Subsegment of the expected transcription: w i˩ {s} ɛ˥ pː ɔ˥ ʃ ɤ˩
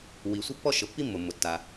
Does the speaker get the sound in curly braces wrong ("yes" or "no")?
yes